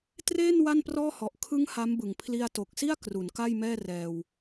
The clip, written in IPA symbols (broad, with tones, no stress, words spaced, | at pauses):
treː˥˩n wa˥˩nprɔː˥˩hɔ˨˩ʔ kʰɯ˦˥ŋ ha˦˥mbɯ˨˩ŋ pʰli˧a̯to˨˩k̚si˥˩a̯ kru˩˦nka˥˩jmɛː˥˩ rɛː˧w